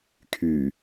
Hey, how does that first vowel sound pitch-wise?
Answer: low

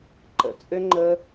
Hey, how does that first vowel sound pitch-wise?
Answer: low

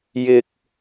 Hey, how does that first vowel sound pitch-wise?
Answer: high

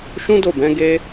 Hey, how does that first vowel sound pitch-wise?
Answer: high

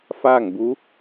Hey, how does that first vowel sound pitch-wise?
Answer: falling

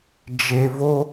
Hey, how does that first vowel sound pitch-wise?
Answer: low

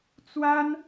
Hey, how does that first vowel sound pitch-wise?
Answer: high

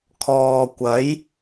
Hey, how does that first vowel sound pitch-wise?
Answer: low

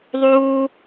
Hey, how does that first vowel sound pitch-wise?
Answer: high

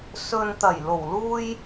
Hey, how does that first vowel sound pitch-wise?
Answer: low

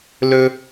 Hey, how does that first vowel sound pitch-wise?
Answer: high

